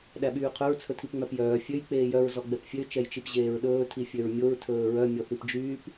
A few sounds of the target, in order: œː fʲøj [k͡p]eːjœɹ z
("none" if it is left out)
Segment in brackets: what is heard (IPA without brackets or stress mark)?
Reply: k͡p